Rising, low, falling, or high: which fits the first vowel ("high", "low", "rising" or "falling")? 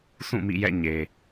falling